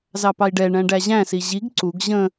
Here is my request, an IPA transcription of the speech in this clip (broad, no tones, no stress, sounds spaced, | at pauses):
z ɑ p ɑ i̯ ɖ ɛ ɳ æ̃ ɖ æ ʑ æ̃ s i ʑ i ɡ ǀ u ɡ ʑ ə̃